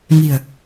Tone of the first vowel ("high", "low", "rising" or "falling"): low